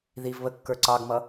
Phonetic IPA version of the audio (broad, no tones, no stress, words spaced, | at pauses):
ðiv βəkːə˞ ǀɑɡmʌ